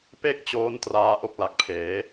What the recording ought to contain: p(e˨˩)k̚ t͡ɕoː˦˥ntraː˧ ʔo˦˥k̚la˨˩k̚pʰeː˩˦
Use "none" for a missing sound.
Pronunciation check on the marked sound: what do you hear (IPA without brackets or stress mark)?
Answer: e˥˩